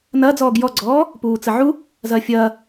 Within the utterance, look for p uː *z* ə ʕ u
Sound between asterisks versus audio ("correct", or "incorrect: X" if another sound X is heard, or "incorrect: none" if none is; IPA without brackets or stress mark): incorrect: t͡s